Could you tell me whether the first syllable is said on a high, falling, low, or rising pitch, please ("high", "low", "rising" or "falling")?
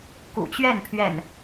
low